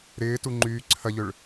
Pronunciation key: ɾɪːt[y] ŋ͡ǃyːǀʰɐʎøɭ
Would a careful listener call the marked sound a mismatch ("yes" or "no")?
yes